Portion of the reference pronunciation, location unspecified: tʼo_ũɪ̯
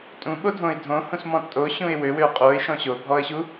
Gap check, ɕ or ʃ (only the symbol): ɕ